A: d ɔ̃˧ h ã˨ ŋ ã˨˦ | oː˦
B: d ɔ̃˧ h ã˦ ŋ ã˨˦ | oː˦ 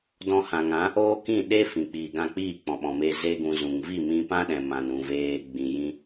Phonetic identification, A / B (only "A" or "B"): A